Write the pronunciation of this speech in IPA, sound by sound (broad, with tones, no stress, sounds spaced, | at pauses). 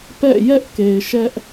p ɛ̰˦˨ j ɛ˦ ʔ k e˨ ɪ̯ ʃ ɛ˦ ʔ